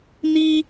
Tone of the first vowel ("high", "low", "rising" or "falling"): high